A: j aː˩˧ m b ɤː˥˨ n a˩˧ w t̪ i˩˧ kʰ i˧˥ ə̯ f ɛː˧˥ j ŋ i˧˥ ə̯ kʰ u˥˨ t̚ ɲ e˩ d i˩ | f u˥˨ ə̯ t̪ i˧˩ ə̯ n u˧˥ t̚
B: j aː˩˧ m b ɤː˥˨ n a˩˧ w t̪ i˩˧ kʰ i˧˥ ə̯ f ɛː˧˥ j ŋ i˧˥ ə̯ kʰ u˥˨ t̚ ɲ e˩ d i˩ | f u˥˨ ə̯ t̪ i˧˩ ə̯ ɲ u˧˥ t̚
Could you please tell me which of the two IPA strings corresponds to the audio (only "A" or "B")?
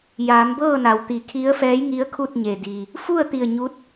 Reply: B